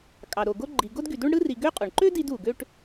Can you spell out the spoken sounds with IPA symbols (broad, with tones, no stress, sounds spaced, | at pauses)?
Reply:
kʼ ɑ˩ ɾ o˩ ɡ o˥ ɡ͡ǃ i˨ ɡ o˥ d ɡ y˨ d u˥ ɳ ɽ ɯ˥ r i˨ ɡ ø˦ qʼ o˩ ɳ ǃ ø˥ d i˥ d u˩ ɡ ø˥ ʈ